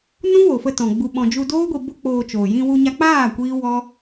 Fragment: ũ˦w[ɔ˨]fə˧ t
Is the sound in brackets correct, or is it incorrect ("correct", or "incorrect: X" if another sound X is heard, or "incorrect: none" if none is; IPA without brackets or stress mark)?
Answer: incorrect: o˨